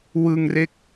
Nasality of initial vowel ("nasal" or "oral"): oral